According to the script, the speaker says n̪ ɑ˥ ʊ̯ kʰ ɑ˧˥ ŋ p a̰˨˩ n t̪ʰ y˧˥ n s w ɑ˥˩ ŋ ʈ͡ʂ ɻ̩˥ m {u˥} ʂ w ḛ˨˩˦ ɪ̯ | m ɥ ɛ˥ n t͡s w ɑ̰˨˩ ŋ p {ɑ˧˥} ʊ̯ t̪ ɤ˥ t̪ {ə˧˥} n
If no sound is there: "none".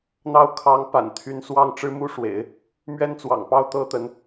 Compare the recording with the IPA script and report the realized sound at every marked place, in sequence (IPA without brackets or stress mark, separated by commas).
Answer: u˥, ɑ˥˩, ə˧˥